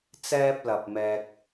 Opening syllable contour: high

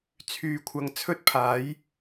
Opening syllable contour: low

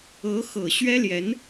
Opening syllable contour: rising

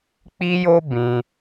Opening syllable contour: high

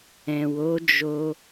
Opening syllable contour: low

